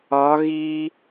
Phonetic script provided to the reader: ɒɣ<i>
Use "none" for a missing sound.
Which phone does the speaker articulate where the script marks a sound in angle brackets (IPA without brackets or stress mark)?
iː